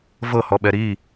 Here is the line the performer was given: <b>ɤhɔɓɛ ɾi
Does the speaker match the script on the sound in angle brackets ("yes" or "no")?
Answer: no